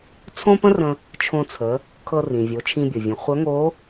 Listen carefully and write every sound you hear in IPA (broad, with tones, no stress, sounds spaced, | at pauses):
t͡sʰ õ˥ p ə̃˥ r ə̃˧ | t͡ʃʰ õ˧ t͡sʰ ə˩˧ | kʰ ɤ˧ r ĩ˩ vʲ o˩˧ t͡ʃʰ ĩ˧ bʲ ɤ˩ vʲ ə̃˩˧ χʷ œ˧˥ ŋ o˧˥